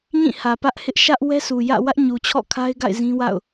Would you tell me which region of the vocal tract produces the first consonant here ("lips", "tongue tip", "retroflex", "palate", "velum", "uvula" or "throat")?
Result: palate